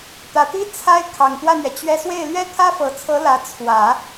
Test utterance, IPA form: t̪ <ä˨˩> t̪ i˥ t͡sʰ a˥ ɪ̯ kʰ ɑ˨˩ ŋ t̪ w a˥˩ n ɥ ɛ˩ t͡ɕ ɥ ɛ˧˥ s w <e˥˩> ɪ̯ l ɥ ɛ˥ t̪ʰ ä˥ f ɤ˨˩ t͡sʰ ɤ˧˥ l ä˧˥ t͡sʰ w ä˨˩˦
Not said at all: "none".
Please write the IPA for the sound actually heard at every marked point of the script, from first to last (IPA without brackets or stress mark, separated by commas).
ä˨˩, e˥˩